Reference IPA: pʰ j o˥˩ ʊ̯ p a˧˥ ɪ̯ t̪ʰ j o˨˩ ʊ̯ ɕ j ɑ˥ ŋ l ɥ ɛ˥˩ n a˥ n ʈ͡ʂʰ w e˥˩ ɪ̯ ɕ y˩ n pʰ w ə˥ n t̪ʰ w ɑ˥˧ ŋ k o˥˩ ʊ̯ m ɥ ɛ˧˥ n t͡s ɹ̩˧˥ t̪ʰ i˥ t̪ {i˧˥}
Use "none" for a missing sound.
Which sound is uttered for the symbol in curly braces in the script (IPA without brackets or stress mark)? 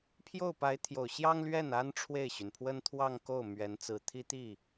i˥˩